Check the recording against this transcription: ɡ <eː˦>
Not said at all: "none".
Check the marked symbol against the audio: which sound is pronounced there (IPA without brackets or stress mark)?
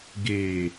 eː˨